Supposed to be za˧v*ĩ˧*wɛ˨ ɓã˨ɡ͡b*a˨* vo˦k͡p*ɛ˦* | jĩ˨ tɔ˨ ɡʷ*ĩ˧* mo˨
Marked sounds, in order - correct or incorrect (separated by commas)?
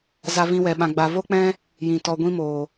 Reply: correct, correct, incorrect, correct